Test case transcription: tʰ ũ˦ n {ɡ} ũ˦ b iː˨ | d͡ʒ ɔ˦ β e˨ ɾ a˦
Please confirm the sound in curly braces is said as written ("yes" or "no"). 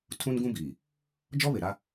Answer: yes